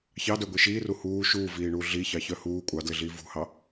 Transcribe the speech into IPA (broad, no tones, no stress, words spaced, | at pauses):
çɑdœɡʷi ʃiːru huː ʃuːviːɳuː ɮiçɑçœ huː kʷʼɑdlɪɮiː vṳhɑ